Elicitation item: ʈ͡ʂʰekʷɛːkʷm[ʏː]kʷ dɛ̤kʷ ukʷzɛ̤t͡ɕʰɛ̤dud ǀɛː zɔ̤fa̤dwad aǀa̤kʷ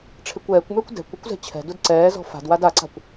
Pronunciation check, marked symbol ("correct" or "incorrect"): correct